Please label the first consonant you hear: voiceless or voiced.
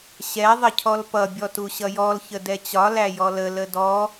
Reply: voiceless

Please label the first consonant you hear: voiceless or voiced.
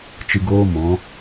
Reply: voiceless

